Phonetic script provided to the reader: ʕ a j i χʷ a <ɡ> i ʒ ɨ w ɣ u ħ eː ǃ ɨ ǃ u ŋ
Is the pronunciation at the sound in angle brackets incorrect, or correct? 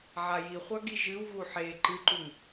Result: correct